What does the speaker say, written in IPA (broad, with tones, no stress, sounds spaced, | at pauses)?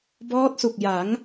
b ɔː˦˥ t̚ s u˨˩ k̚ j a˩˦ ŋ